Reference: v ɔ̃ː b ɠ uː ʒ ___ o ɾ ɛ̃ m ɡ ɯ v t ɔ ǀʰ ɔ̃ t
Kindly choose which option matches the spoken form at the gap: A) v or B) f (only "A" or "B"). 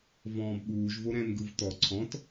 A